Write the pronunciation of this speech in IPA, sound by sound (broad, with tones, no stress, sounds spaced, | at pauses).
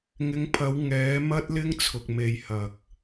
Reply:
ŋ ɪ˨˧ ŋ pʰ ɐ˨˧ w ŋ ɛː˨˥ m ɐ˥ t̚ l ɪ˥ ŋ t͡sʰ ʊ˨ k̚ m e˨ j h ɐ˨ k̚